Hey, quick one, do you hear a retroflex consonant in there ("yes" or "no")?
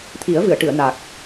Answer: yes